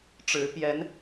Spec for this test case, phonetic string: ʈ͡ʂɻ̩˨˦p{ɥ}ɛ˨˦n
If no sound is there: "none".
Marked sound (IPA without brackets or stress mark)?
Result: j